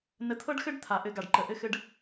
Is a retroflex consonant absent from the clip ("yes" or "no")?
no